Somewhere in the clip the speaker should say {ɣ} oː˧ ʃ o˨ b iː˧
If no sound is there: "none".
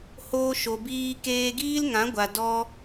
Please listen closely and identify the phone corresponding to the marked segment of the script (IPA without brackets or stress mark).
h